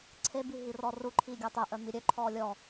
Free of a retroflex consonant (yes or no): yes